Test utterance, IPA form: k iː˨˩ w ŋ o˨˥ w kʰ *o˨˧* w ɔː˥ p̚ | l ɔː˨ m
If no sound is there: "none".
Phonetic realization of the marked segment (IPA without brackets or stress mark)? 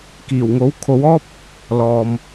o˨˧